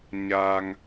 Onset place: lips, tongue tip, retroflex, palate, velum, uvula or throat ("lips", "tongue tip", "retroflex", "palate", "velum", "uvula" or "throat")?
palate